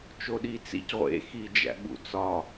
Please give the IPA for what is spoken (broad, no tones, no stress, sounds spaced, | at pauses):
t͡ʃ o ɗ i t͡s ḭ c ʁʷ ḛ x i d͡ʒ æ̰ ɓ ṵ t͡s ɒ